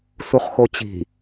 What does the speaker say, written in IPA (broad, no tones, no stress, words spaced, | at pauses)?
suχxot͡ɕi̤